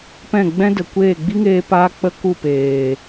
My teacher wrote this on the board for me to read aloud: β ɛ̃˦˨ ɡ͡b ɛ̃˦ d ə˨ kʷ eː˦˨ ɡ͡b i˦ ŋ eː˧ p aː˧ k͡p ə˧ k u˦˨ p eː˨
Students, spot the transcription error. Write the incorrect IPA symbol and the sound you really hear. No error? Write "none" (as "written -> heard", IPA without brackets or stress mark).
β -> p